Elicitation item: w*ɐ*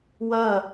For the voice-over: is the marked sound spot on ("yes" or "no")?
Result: yes